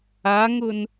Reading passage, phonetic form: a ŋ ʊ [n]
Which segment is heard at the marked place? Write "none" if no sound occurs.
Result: n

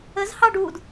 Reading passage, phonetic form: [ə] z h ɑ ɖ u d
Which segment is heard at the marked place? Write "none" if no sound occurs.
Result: ə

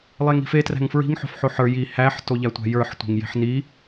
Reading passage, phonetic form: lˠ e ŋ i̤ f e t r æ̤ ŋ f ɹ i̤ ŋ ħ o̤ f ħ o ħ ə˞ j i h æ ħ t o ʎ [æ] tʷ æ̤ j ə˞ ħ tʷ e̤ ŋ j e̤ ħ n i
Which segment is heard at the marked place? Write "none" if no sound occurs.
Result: æ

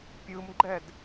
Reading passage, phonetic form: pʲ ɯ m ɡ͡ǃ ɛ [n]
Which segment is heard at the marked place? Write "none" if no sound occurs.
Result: d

